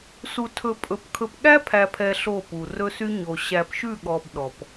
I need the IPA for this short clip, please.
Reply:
s u˨ tʰ ɵ˨ pʼ ɵ˨ p kʰ ɵ˨ p ɠ æ˦ pʰ æ˨ pʰ ɛ˨ ɬ o˦˨ p u˨ r ɵ˦ s y˦ ɲ o˨ ɕ æ˨ p ʃ ʉ˦˨ ɠ ɔ˨ b ɗ ɔ˨ p

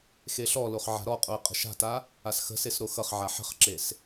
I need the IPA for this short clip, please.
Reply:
x e ɬ ɔ l o χ ʕ a̤ ɾ ɔ qʼ o ə̯ qʼ ə̤ ʃ a̤ t a | a s x ə̤ s e s ɾ o x ʌ χ ʕ a ħ ə̤ χ ǁ e s

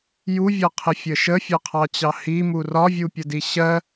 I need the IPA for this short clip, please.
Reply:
j u vʲ ɒ qʰ ɪ fʲ ə ʃ ə fʲ ɒ qʰ ɑ t͡ɕ ɑ h i m u r ɒ vʲ u pʲ ə d i ɕ ɜ

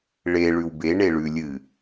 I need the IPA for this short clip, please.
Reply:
ɭ e ɭ ʉ w b e ɳ e ɭ ʉ lʲ ɨ

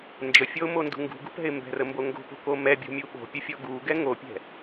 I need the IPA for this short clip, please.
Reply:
n d͡ʒ ə fʲ ɔ ʊ̯ m o n d ṳ ŋ ɡ ṳ ɡ ṳ p ɛ̤ ɪ̯ m b ɛ̤ r ə m b o ŋ ɡ o̤ p o̤ k o m ɛ bʲ o̤ mʲ u ɓ o̤ pʲ ə fʲ ɔ ɡ u ɡ ɛ ŋ o pʲ ɛ̤

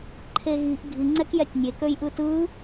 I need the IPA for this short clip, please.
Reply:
ǃʰ e ɣ i ʔ ɡʱ i ŋ͡ǀ ɛ k j ɛ tʲ nʲ e k ø j ʔ ɯ t ɯ

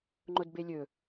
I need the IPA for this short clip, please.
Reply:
ŋ͡ǃ o d b e lʲ ɵ

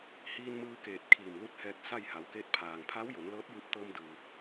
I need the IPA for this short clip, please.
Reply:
h iː˧ n m ɯː˧ k eː˧˩ t̚ kʰ iː˧˩ m l u˧˥ t̚ h ɛː˧ k̚ s a˥˨ j h a˩˧ w k e˧˥ t̚ pʰ aː˩ ŋ pʰ a˧˥ w j o˩˧ n l ɤː˧˥ t̚ j ɯː˧ p̚ t̪ ɤː˧ m d ɯː˩

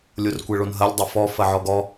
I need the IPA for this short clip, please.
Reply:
lʲ o r kʷ ɛ ɭ o n ɦ ɐ lʲ dˤ ɘ f ɔ f ɐ ʕ ɔ ɡ ɔ

